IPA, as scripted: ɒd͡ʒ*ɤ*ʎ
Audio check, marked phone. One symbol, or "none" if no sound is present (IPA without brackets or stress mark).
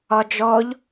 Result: ɔ